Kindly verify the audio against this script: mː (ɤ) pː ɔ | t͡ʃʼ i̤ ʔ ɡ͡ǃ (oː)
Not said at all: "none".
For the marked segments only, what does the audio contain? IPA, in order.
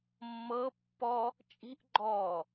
ɤ, ɔː

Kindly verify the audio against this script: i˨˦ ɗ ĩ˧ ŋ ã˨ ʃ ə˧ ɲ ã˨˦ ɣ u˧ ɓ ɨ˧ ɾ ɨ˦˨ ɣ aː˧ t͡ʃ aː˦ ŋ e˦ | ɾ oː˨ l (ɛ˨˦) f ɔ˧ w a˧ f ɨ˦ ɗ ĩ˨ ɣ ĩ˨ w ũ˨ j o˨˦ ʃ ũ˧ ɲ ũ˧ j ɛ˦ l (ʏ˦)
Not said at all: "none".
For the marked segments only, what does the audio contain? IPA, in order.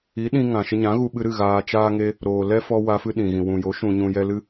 ɛ˦, ɨ˦

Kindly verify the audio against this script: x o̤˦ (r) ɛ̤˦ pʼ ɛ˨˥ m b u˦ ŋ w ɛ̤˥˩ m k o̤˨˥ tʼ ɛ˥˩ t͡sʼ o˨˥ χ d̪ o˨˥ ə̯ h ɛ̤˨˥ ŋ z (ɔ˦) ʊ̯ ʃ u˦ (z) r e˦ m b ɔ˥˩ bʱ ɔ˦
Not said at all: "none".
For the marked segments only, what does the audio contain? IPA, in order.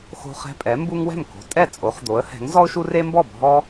χ, ɔ˦, none

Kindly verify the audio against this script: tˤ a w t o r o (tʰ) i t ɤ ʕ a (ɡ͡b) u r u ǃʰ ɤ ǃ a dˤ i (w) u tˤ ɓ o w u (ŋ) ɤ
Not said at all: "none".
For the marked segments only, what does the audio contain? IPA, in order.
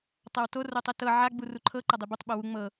tˤ, ɡ͡b, b, ŋ͡m

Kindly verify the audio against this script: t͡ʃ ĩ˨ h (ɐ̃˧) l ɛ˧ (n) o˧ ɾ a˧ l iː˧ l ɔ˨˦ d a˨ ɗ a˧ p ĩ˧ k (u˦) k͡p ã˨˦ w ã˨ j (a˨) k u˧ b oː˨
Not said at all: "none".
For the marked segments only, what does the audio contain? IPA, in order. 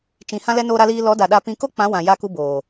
ã˧, n, o˦, a˧

